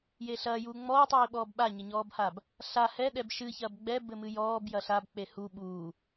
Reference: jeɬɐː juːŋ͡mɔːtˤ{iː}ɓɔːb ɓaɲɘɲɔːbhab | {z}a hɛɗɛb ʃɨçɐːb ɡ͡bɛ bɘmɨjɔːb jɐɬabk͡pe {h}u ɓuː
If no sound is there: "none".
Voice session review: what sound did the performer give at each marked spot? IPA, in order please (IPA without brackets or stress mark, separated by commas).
iː, ɬ, h